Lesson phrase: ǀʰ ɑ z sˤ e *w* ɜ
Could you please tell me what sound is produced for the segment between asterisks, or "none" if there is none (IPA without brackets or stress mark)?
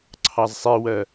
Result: w